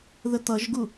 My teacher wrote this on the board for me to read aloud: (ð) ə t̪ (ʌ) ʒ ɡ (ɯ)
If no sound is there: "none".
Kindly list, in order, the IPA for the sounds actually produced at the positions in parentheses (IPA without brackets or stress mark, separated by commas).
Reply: ð, ʌ, u